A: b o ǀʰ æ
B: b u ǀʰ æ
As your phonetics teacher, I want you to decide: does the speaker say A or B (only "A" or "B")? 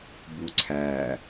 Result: B